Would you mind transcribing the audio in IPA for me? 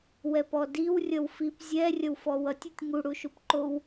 w ɛ p ɔ d i w rʲ ʌ w f i p zʲ ɛ rʲ ʌ w f ɔ w ʌ tʲ u tʲ ŋ u ɽ u ʃ u p ǃ o w

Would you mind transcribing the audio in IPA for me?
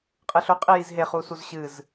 qʼ ɨ ɬ ɵ qʼ i j i z ɦ e χ u s u z ɕ ɨ z

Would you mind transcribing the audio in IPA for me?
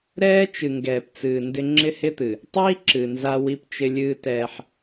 ɾ ɛː˦ t͡ʃ ɨ˨ ŋ ɡ ɛː˨ p t͡s ɨː˨ n d ɪ˦ ŋ͡ǁ ɪ˦ h ɪ˦ t̪ ɨ˨ | tˤ iː˦ ǁ ɨ˨ n z a˦ w i˦ p t͡ʃ ɪ˦ lʲ ɨː˦ t ɛː˦ ħ

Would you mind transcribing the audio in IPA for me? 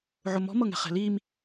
ʕ ʊ m ɔ̤ m ɤ ŋ ɛ̤ χ ɛ̤ l i m

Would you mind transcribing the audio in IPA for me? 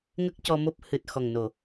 ŋ ə˦˥ k̚ c ɔ˧ m o˦˥ p̚ h ɨ˨˩ t̚ x ɔ˨˩ ŋ n o˨˩˨

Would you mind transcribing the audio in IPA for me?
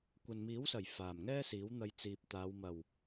kʷ ɐ˨ n m iː˨˥ w s ɐ˨˩ j f aː˨˩ m ŋ ɛː˥ s iː˨˥ w n̪ ɐ˧ j t͡s iː˨ p̚ t̪ aː˨˧ w m ɐ˨˩ w

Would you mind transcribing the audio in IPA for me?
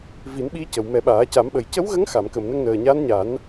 v i˨˩˦ n ɓ i˧˥ c ə˨˩ w m ɛ˨˩˦ ɓ aː˨˩˦ c a˨˩˦ m ɓ ə˨˩ j c ə˧˥ w ɣ ə˧˥ ŋ x a˨˩˨ m k ə˨˩˨ m n ə˧ ŋ n əː˨˩ ɲ a˧˥ n ɲ a˨˩˦ n

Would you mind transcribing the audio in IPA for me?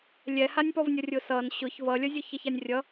lʲ ɛ h a nʲ p ɔ v nʲ ʌ rʲ ʊ s ʌ n ɕ ʊ ç v ʌ lʲ ʌ zʲ ʊ ç ʌ ç a nʲ rʲ ʌ

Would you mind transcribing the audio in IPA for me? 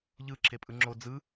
ʎ ɯ ǁʰ e pʼ ɯ ŋ͡ǁ o d͡z ɯ

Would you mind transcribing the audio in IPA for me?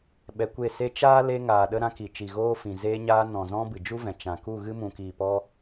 ɓ ɛ˧ kʷ e˦˨ s e˧ t͡ʃ aː˦ l e˧ ŋ aː˨ ɗ ə˧ ɾ ã˧ k i˨ t͡ʃ i˨ ɣ oː˧ f ĩ˨ z eː˧ ɲ aː˧ n ɔ̃˨ z ɔ̃˧ b ɨ˨ d͡ʒ u˦ v ɛ̃˨ t͡ʃ ã˨ k u˦˨ ɣ ɨ˧ m ũ˨ k iː˨ p ɔ˧

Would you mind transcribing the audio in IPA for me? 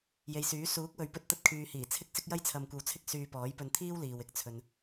j e˨ j s yː˨˥ s uː˨˥ k̚ w ɵ˨ ɥ p ɵ˧ t̚ t̪ ɐ˧ t̚ kʰ yː˨ h iː˨˩ t͡sʰ ɪ˥ k̚ s ɪ˥ k̚ j ɐ˥ j t͡sʰ ɐ˧ m kʷ ɐ˧ w t͡sʰ ɪ˥ k̚ s yː˧ p ɔː˨˥ j p ɵ˧ n t̪ʰ iː˥ w l iː˨ w ɪ˨ k̚ t͡sʰ ɵ˨ n

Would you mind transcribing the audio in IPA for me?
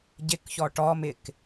ɟ ɪ k ç ɔ ʈ ɔ m ɪ k

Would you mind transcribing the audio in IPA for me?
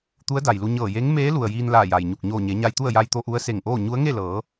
t̪ u˧˥ ə̯ d a˩ j l u˧ ɲ ɤː˧˩ j e˧˥ ŋ m eː˧˥ l u˩ ə̯ j iː˧ n l aː˧˩ j a˩ j ɲ u˧˩ k̚ ɲ oː˧˩ ɲ e˩˧ ɲ a˧ j t̪ u˥˨ ə̯ j a˧ j t̪ o˧ ʔ u˧˥ ə̯ s e˧˩ ŋ ʔ oː˥˨ ɲ u˧˥ ə̯ ŋ e˥˨ l ɤː˩˧

